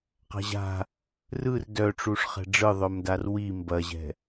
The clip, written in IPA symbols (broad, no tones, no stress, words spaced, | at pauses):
qa̤ʑa̤ | rɯr dœʈ͡ʂuʂ χɛ̤ɖ͡ʐɯðˤœmdar wi mbɐʑɛ̤